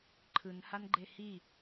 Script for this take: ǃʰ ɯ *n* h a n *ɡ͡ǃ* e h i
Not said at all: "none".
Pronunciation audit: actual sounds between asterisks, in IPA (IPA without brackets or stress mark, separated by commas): n, ɡ͡ǃ